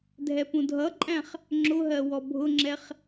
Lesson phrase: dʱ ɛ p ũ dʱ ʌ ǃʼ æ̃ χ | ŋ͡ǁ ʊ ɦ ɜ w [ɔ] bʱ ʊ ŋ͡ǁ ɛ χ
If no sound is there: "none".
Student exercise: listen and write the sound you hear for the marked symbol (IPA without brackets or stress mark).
ɔ